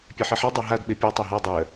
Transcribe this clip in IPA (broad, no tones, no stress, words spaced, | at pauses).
pʲeħiħɛ dˤaɦad ɓepʲɛ tˤaɦɜ dˤɜ